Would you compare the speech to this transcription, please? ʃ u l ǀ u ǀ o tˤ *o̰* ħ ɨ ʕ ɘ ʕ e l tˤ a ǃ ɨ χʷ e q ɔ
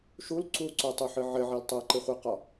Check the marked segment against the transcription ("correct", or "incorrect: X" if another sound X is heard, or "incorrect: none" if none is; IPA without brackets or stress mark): incorrect: o